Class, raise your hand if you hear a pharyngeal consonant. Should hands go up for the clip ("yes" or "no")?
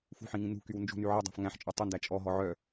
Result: yes